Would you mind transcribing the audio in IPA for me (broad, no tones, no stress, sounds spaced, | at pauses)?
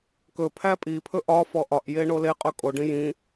k ɵ pʰ æ pʼ i pʰ ɵ ʔ ɒ f ɔ ʔ ɒ ʔ j e ɳ o l e qʼ ɵ kʼ o ɖ ĩ j ĩ